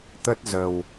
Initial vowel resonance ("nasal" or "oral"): oral